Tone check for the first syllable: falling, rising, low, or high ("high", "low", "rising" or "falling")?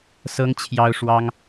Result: high